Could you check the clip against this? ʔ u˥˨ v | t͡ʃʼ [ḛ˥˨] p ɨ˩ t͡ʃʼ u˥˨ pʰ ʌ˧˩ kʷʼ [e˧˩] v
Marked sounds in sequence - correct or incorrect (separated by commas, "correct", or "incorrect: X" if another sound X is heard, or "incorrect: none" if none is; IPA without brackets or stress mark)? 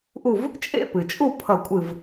correct, incorrect: ɨ˧˩